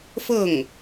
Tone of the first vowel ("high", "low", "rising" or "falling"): falling